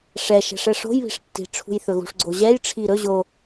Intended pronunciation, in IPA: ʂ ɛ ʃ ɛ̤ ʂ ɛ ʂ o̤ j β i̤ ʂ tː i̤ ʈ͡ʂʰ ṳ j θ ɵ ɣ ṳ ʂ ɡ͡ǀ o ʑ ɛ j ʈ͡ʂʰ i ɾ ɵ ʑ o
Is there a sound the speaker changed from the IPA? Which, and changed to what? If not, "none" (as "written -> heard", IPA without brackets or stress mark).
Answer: none